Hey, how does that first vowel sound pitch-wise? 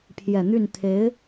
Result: low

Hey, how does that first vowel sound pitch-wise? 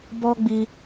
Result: high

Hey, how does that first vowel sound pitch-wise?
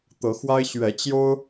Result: rising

